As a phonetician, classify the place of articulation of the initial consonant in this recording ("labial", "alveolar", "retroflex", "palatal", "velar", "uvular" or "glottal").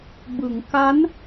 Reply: labial